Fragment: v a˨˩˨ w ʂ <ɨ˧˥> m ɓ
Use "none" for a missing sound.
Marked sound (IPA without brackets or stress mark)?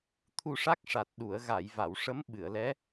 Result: ə˧˥